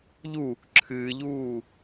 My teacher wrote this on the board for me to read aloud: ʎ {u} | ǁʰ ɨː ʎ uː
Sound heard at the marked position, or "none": u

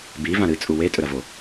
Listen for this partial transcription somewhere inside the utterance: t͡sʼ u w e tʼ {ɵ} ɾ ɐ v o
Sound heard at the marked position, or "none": ɵ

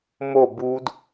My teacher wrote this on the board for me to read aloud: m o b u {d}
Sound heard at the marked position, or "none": d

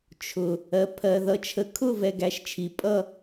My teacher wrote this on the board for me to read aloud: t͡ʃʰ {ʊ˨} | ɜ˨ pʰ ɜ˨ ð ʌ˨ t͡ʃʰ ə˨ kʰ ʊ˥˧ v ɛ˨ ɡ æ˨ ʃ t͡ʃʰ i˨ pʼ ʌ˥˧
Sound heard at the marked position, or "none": ʊ˨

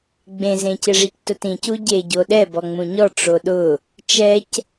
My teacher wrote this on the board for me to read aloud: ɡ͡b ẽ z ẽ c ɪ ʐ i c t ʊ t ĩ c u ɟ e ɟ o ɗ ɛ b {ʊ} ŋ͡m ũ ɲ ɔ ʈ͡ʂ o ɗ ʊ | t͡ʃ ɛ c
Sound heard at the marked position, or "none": ɔ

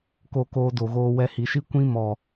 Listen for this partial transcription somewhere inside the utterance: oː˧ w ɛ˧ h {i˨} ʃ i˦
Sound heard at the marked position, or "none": i˨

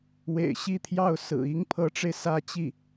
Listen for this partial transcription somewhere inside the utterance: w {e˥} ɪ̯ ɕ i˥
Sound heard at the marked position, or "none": ḛ˨˩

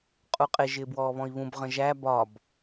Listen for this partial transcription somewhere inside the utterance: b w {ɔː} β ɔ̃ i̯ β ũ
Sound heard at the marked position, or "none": ɔː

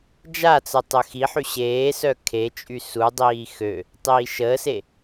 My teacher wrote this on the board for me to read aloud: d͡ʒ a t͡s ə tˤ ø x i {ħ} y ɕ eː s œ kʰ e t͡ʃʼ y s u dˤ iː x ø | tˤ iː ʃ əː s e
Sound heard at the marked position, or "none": ħ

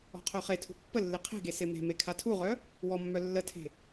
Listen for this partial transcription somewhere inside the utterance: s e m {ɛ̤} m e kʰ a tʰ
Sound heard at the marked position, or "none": e̤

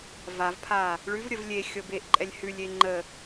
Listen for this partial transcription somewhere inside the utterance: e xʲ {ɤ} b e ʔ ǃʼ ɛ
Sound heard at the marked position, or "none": ɤ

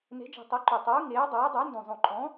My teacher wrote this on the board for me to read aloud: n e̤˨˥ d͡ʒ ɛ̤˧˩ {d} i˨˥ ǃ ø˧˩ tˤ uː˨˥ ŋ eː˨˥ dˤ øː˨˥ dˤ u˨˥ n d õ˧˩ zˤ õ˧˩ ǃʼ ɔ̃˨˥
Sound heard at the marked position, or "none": tˤ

